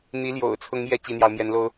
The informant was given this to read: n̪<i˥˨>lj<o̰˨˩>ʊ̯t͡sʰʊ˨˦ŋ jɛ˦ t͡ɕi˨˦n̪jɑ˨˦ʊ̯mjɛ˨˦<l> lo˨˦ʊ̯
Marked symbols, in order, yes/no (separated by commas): no, yes, no